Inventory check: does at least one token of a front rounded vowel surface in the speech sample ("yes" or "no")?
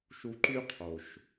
yes